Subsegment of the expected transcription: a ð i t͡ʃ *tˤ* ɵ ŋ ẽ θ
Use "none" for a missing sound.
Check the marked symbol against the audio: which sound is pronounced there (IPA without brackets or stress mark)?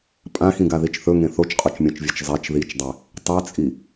θ